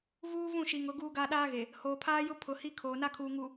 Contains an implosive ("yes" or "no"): yes